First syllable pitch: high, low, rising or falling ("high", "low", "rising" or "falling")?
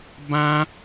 high